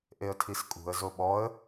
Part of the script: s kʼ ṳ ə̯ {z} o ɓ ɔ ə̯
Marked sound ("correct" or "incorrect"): correct